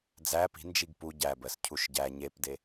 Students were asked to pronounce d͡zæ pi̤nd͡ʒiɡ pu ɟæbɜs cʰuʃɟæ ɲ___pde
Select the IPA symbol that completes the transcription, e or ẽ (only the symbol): e